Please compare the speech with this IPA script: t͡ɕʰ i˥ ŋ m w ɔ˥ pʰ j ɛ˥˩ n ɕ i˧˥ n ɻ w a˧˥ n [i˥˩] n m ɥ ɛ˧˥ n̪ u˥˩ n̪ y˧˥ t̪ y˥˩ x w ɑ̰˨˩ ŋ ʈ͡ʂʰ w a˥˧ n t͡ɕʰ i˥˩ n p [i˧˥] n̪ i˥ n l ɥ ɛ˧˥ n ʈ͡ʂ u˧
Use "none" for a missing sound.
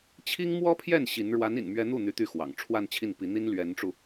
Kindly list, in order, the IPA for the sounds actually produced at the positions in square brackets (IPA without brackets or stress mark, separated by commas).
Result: ḭ˨˩, i˧˥